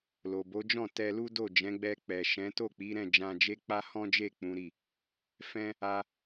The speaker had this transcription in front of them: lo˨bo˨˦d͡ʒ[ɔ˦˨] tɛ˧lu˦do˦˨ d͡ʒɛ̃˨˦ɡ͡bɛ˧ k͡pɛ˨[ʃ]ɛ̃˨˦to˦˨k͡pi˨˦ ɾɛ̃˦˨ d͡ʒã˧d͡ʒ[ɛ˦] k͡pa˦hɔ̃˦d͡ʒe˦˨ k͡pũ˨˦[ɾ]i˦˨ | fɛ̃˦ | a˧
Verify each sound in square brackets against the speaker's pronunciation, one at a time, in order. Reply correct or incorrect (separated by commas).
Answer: incorrect, correct, incorrect, correct